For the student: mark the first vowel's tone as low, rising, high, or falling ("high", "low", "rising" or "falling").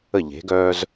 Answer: falling